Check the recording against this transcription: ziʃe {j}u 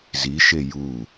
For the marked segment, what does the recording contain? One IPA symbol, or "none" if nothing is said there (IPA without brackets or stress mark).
j